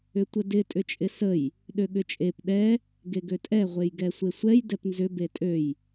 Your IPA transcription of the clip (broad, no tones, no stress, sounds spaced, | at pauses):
ʏ tʷ ə d ɪ tʼ ʏ t͡ʃʼ ɪ s ə j | ɗ ø ɠ ʏ t͡ʃʼ e p ɗ ɛ | ɡ e ɡ ø tʼ ɛ ʁʷ e j ɡ ɛ sʷ e sʷ ɛ j d ɛ p n z ʏ b e tʼ ø j